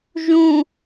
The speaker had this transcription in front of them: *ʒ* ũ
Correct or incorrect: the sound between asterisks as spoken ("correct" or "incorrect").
correct